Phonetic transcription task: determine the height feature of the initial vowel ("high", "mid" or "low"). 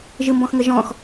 high